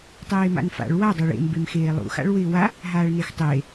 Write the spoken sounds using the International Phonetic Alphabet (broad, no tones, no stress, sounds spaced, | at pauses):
tˤ eː m a̰ n f a̰ ɭ w a dˤ a ɭ ḛ m b e m x eː lˠ ṵ x a̰ ɭ w ɪː w a | ɦ aː ɭ n e x tˤ eː